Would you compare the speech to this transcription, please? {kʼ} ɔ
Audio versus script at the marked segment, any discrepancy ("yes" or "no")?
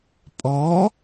yes